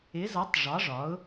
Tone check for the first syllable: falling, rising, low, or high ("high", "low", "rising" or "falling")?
rising